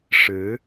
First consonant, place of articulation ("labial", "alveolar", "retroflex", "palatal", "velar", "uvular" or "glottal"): retroflex